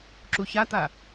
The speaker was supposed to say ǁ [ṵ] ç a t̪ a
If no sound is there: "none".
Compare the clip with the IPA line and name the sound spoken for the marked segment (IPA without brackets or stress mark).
u